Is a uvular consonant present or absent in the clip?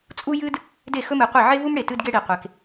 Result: present